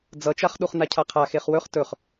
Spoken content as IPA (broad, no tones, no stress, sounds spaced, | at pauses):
d͡z ʌ t͡ʃ a χ ɗ u χ n a cʰ a qʰ a x e χ w ɵ χ t ɵ χ